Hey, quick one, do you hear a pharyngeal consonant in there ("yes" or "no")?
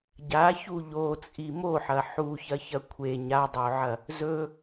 yes